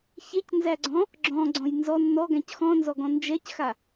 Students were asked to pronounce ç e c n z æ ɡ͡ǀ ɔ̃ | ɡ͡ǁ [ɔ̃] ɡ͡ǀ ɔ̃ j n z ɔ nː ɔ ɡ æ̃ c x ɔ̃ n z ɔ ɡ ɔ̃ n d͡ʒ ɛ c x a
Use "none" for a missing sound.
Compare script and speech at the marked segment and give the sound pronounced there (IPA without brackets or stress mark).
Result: ɔ̃